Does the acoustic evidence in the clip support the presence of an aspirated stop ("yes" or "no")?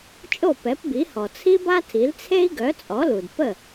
yes